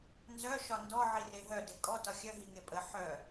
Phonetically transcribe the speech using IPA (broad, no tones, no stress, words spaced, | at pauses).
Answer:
nzœ ʃɒndɔ ʕireɦœ dekʼɔ tɒxʲœ ɦiŋepʼə ħœ